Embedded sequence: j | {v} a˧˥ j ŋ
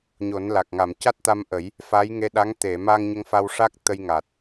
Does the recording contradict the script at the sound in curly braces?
yes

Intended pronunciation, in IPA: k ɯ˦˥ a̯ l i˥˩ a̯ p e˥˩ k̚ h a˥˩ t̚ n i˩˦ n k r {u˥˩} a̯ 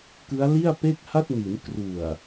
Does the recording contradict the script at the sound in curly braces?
yes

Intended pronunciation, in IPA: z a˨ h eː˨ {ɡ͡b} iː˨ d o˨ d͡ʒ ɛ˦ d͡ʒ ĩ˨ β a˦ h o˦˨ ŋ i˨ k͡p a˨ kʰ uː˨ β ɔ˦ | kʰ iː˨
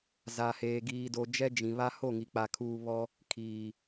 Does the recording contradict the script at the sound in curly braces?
yes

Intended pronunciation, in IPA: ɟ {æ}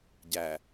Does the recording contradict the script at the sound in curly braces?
no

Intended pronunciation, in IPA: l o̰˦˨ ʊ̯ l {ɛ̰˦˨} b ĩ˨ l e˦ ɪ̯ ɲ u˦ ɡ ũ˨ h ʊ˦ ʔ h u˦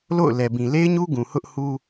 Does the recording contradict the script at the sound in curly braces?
yes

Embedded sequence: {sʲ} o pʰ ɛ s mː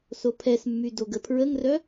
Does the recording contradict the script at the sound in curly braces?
yes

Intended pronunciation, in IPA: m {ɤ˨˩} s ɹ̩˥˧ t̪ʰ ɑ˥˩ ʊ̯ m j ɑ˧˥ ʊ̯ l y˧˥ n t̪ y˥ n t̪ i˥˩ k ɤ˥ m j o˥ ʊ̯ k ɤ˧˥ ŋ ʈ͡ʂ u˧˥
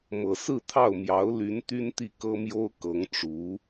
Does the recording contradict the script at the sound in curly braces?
no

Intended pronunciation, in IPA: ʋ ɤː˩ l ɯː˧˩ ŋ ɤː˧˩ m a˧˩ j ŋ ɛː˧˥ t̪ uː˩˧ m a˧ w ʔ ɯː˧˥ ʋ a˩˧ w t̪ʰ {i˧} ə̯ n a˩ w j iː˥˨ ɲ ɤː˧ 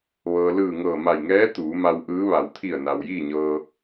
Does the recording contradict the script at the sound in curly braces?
yes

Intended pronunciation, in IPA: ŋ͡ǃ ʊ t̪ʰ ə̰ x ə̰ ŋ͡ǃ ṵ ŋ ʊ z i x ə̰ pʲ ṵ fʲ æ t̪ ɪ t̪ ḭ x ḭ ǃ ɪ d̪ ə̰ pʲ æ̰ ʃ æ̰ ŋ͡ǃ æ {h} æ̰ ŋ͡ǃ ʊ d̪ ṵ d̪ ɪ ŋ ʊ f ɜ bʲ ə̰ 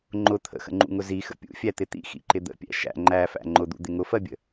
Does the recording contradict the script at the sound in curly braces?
yes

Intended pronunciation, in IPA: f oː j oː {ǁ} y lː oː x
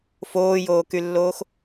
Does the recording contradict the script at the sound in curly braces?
yes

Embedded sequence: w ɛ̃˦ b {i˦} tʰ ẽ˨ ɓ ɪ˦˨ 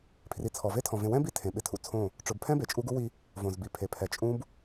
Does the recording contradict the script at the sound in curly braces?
no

